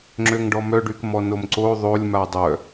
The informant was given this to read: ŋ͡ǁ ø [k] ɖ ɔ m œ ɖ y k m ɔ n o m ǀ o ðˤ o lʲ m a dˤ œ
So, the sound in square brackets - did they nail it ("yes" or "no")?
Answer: no